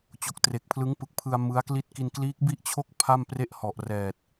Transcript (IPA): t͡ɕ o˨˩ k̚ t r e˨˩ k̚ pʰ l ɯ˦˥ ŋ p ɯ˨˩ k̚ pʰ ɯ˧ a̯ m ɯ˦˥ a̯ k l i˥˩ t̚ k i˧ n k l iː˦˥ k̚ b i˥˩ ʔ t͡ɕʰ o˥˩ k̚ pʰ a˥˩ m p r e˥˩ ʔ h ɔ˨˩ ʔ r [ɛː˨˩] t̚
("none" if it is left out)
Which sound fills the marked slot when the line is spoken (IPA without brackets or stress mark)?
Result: ɛː˨˩